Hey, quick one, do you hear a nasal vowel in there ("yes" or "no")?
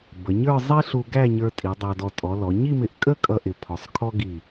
no